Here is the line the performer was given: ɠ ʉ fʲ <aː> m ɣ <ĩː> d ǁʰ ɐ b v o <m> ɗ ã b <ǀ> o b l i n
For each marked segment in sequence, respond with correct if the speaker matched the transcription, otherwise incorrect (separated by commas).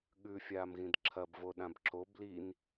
correct, incorrect, incorrect, incorrect